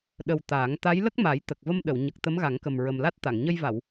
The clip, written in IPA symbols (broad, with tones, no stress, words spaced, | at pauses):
ɗə˨˩w t̪aː˨˩˦ŋ t̪a˧˥jlə˦˥k̚ma˨˩˦j t̪ə˨˩k̚və˧mɗə˨˩˨w ɲə˨˩k̚ t̪ə˧˥mɣa˨˩˦ŋkə˨˩m ɹə˨˩mla˦˥t̚t̪a˨˩˨ŋ ɲə˧jva˨˩˨w